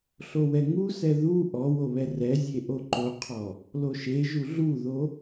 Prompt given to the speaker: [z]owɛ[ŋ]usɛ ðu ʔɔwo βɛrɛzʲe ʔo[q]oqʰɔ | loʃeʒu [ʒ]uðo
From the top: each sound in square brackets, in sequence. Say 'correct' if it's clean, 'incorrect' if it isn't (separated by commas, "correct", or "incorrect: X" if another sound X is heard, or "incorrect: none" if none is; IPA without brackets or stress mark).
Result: incorrect: ɬ, correct, incorrect: ǃ, incorrect: ɮ